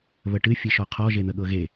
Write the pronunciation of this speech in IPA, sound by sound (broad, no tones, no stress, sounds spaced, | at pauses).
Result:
β ə ʈ ɨ fʲ ɨ ʃ ɔ qʰ ɔ ʒ e n̪ ə ɠ ɤ ɣ e